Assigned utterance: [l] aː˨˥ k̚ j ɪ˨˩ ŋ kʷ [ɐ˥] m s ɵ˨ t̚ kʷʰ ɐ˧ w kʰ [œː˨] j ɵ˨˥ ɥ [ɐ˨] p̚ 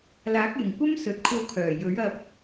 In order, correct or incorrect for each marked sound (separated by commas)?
correct, correct, incorrect, incorrect